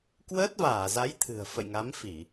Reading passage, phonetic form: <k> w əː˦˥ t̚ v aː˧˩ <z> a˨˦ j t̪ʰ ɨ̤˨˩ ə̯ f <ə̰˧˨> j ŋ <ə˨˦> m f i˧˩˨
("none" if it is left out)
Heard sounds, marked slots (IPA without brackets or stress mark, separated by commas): k, z, ə̰˧˨, a˨˦